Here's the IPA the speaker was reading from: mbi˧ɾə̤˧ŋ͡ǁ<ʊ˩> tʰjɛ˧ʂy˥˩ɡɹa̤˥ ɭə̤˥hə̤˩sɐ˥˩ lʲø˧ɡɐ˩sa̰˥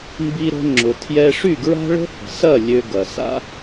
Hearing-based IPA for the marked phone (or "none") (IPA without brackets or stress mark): ʊ˩